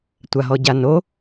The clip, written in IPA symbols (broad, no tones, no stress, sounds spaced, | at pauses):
tʷ a ɦ ɔ ɟ a n o